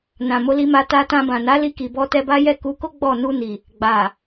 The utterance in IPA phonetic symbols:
n ã˨ m o˨˦ l i˧ m a˧ t a˧ t ã˧ b ã˨ n a˨˦ l i˧ k i˨ b ɔ˧ t ɛ˧ b a˦ j ɛ˦˨ k u˨˦ k o˦ ɡ͡b ɔ˦˨ n u˧ n i˨ | ɡ͡b a˨

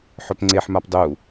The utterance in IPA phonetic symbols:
ħ œ p ŋ͡ǀ e ħ m a p dˤ u

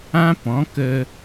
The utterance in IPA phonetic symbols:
ã˦ p ɔ̃˨˦ k ə˧

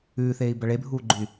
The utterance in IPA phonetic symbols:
ʉː θ eː i̯ b ɐ ɭ e bʱ uː ɡ͡ǃ ʉ y̯

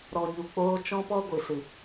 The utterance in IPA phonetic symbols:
ɾ ɔ˨ ɲ u˨ k͡p oː˧ t͡ʃ ɔ̃˦ p ɔ˦ ɡʷ ɨ˨ s ɨ˨

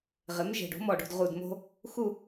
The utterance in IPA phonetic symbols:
ʁ ɪ˩˥ m ʒ e̤˨˩ ɖ o̤˩˥ m ɔː˨˩ ɖ o̤˦˨ d ʁ u˨˩ d m o̤˦ | x u˦˨

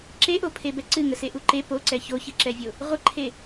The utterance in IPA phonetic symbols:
ǁ e ʔ o pʰ e b ɛ ǀ ɨ ŋ ə s e ʔ u ǃ e p o ǀ ɛ ç o ç ɨ ǁ ɛ vʲ o | ʁʷ ə ǃʰ e

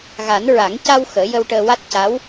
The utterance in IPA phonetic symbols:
ɣ a˨˩˦ n ɹ a˨˩˦ ŋ c a˧ w x əː˨˩˦ j ə˧ w ʈ əː˧ w a˦˥ t̚ c a˧˥ w

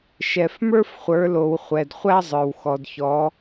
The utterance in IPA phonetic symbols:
ʃ ɛ˨ f m ə˞˥ f χʷ ə˞˨˦ l o˨ w χʷ ɛ˨ d χʷ æ˥ zˤ ə˞˨ w x ɔ˨ d ç ɔ˨˦

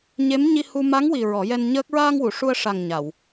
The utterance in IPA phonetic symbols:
ɲ e˧˥ m ɲ i˧ h u˧ m a˧˥ ŋ w i˨˩ ɹ ɔ˨˩˦ j ɛ˧ n ɲ əː˦˥ k̚ ɹ aː˧ ŋ w u˨˩˨ ʂ u˧ ə̯ ʂ a˨˩ ŋ ɲ a˨˩˨ w

